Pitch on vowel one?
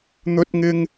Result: high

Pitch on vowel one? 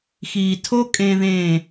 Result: low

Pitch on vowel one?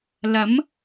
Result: rising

